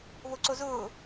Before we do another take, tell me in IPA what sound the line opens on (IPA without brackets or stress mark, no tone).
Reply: β